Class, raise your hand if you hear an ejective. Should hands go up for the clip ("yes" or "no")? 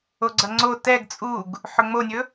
yes